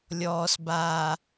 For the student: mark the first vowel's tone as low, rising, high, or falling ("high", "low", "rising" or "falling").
low